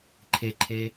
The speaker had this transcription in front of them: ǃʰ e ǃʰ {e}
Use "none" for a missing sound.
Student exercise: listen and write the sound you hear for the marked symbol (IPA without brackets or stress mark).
e